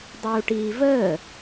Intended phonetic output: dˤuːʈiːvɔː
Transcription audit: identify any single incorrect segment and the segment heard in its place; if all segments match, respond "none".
ɔː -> əː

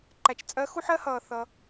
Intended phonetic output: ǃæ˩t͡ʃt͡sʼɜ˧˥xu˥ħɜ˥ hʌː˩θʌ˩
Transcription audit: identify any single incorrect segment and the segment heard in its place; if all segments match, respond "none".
none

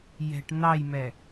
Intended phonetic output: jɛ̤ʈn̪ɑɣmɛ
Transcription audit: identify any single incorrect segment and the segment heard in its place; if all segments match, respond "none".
ɣ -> j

